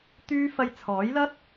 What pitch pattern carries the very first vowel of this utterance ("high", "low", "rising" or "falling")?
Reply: high